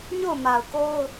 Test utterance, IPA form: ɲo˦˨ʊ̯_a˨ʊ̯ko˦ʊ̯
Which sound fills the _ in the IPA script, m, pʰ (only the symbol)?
m